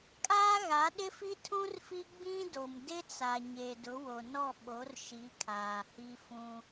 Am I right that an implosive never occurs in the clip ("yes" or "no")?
no